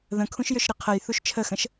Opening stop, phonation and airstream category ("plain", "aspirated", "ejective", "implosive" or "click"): aspirated